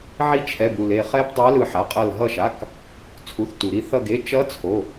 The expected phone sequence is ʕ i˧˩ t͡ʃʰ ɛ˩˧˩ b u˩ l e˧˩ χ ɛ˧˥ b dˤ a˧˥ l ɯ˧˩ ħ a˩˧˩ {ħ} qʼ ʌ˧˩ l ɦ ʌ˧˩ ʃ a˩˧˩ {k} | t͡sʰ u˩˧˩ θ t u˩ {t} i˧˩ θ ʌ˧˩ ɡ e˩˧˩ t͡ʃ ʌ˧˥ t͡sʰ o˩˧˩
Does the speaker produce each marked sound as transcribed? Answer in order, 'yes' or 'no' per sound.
no, yes, no

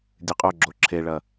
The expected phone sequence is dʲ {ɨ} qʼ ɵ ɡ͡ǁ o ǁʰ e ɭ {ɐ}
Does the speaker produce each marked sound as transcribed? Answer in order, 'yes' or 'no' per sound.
yes, yes

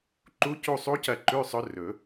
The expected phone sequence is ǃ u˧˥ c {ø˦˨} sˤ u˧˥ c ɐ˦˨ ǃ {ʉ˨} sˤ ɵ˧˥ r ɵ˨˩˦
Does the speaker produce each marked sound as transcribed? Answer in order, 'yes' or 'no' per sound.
no, no

